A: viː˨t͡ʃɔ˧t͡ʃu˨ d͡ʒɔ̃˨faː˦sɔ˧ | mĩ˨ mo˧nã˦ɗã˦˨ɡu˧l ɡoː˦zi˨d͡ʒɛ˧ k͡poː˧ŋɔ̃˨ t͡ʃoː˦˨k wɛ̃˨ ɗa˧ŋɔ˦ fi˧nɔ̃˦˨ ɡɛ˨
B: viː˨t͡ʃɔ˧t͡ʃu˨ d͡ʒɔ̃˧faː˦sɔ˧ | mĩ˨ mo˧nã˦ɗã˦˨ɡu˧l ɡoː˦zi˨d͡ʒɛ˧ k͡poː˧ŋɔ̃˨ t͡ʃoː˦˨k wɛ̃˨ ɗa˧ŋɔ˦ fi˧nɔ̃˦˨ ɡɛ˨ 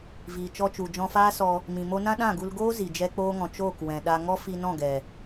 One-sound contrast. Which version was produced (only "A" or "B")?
B